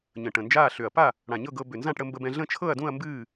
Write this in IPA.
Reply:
ɲ ə̃˨˩ ʈ ə̃˨˩ n d͡ʒ aː˥˨ ɬ ʏ˨˩ ɐ̯ p a˥˨ | ɽ ã˨˩ ɲ ɤ˥˨ ɡ ɤ˧ b ʏ˨˩ n z ã˥˨ ʈ ɽ ə˧ m b ə˧ b ɛ̃˧ ɮ ə̃˥˨ t͡ʃʰ ɤ˥˨ ɐ̯ d ũ˥˨ ɐ̯ m b ɨː˥˨

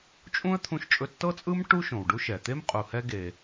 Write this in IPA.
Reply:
t͡ʃʼ ũ˥ ə̯ t̪ʰ ũ˥ ʃ t͡ʃʼ ɵ˥ tː ɤ˥ t͡sʼ ɯ˥ m ʈ u˥ ʃ õ˩ w ɖ u˥ ʃ ɛ˩ t̪ e˥ m qʼ u˩ h ɛ˥ ɡ e˩

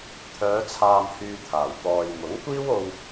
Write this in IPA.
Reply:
t̪ʰ œː˨˧ t͡sʰ aː˨ m h yː˨ t̪ʰ aː˨˩ w t̪ ɔː˧ j m ʊ˨˥ ŋ kʷ iː˥ w o˧ w

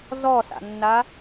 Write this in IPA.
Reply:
z ɔ s a̰ nː a

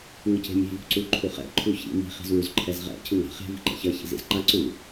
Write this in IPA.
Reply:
ŋ ɯ c e̤ mʲ e̤ v ṳ ǀ u ǃʰ u χ ɛ̰ ǃʰ u ç ḭ m i̤ χ i̤ z w u z ǃʰ ɛ z ʁ ɛ̰ cʰ ɯ ŋ a̤ χ e̤ v i̤ ǃ ɛ̰ ç ʌ ç ḭ z ḭ z ǃ a ǀ u

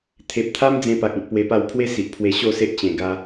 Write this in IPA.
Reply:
t̪ʰ e˨ p̚ t̪ʰ a˦ m d͡z ẽ˧ p a˨ k̚ ĩ˨ t̚ p w e˧ p a˥˧ w pʰ w e˦ s i˨ ʔ pʰ w e˧ ɕ o˥˧ s e˦ ʔ t͡ɕ ẽ˧ ɡ a˦

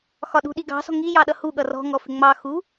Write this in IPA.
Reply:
x ɒ ɗ ṳ ɗ i ɡ ɑ̤ s ɔ̤ ŋ i j ɑ ɗ ʌ h u ɠ ʌ r ɔ̤ ŋ ɔ f ɪ ŋ͡m ɑ x u

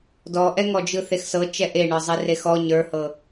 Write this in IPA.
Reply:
d ɔ ʔ ɛ ŋ ɔ d͡ʒ ɯ θ e x s ɤ t͡ʃ ɛ ʔ e ɳ ə˞ zˤ i r e x ɔ ɲ ə˞ h ɤ

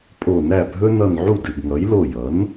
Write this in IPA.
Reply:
pʼ o˧˩ n æ˥˩ bʱ ɵ˦ n ʌ˧˩ n ʕ u˥˩ d ɨ˧˩ ɡ ŋ ʌ˩˥ j l o˧˩ j ʌ˩˥ n

